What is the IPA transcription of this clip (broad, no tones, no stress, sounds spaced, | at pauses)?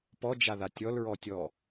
p ɔ d͡ʒ a ð a tʲ ɔ l ɹ ɔ tʲ ɔ